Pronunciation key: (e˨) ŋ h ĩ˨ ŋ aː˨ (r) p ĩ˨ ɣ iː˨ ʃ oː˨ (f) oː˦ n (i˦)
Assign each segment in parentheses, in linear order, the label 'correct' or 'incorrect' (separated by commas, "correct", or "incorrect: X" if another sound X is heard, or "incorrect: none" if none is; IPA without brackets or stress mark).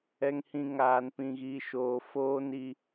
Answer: incorrect: ɛ˨, incorrect: n, correct, correct